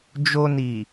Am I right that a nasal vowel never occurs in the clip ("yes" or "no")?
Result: yes